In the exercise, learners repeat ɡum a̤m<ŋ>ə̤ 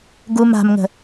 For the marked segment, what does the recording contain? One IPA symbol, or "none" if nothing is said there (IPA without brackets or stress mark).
ŋ